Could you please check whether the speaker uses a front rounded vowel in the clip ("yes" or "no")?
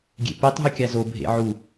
no